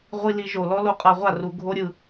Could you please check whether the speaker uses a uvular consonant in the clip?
yes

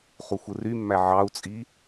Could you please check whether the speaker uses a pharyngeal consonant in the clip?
yes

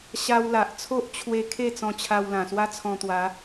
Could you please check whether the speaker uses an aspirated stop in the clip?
yes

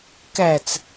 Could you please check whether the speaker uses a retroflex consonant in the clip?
no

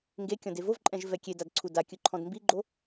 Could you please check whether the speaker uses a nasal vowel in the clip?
yes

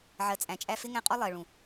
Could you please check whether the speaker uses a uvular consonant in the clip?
yes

